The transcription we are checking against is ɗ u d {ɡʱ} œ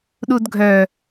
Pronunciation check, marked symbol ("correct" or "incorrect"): correct